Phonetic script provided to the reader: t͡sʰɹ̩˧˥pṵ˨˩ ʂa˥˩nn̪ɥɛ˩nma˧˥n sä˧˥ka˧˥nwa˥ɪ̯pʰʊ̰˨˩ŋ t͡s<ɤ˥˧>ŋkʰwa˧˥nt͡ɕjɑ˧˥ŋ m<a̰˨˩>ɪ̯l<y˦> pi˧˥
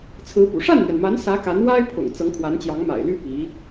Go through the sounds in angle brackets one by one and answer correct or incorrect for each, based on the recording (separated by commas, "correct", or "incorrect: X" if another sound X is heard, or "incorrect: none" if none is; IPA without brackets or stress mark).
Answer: incorrect: ɤ˧˥, correct, incorrect: y˥